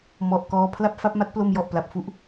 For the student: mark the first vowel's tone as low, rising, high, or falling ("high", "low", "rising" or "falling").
low